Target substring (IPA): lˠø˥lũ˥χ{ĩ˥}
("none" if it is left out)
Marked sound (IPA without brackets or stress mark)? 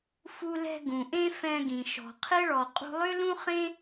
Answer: ẽ˥